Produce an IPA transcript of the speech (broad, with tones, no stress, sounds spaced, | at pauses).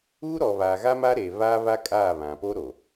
uː˦ ɾ ɔ˨ β a˨ ɣ a˦ m a˦ ɾ eː˨ β aː˦ β a˦ kʼ aː˦˨ β ã˨ p o˦ ɾ o˨